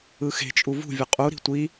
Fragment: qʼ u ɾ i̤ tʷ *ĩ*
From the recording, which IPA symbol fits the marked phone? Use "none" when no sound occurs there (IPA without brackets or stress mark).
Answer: i